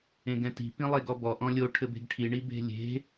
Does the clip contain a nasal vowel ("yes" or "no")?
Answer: yes